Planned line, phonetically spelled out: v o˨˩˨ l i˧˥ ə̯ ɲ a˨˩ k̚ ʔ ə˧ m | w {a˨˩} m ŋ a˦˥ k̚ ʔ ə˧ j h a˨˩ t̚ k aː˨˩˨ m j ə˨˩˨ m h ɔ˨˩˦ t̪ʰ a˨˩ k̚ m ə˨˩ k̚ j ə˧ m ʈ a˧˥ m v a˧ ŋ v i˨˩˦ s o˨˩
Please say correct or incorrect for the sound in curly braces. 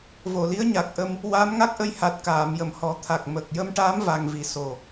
incorrect